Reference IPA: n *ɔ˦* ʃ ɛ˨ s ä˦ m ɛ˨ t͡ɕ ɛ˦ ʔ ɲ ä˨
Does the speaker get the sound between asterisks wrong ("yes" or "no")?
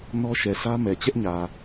no